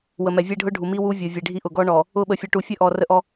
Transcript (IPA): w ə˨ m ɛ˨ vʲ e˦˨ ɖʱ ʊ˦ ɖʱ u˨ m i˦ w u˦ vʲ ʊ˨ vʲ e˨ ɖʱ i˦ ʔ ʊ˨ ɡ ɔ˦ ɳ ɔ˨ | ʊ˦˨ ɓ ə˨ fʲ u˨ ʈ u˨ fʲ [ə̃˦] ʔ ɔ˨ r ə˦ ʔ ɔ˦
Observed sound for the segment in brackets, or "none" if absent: ə˦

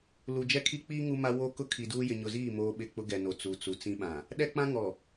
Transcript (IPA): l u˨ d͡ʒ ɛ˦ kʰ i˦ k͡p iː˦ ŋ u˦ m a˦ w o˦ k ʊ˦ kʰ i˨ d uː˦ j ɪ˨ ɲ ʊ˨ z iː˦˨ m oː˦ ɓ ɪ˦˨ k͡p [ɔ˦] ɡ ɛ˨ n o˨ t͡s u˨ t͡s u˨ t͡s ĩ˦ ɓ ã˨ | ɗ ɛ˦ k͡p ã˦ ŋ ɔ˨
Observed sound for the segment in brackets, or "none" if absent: ʊ˦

